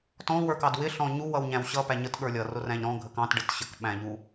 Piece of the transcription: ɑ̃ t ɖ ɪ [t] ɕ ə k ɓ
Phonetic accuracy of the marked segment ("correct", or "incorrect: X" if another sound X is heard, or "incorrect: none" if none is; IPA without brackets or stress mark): correct